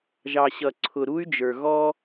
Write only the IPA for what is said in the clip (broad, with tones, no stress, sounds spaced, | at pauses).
ʒ ɑ˨ ɕ ʌ˨ ǀʰ ʊ˨ ɾ u˦ y̯ d͡ʒ ə˞˨ ɣ ɔ˦